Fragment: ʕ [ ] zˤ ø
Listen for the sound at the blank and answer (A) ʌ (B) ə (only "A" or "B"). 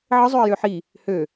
B